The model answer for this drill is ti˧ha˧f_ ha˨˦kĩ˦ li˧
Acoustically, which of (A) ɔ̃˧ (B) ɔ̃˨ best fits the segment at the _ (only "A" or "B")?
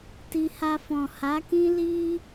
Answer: B